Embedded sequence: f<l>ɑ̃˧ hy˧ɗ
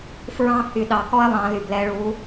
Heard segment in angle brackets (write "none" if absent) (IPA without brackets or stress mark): ɹ